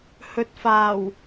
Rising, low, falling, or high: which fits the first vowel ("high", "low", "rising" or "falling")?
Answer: rising